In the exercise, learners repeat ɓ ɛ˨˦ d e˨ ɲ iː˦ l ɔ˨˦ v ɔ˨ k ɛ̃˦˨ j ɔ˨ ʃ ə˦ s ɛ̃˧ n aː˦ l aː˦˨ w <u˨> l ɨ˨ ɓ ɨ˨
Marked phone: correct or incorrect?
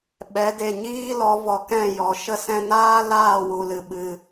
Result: correct